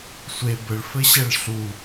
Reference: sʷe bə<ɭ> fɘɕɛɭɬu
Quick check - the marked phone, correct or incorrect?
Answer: correct